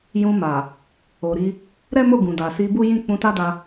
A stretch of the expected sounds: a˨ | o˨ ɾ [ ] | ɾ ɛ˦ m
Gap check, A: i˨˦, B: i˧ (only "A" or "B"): B